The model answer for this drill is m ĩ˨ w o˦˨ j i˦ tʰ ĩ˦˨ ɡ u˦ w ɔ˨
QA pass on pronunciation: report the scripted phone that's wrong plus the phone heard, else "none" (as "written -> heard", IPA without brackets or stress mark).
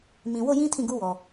i˦ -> ĩ˦